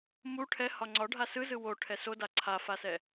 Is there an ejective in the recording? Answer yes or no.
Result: no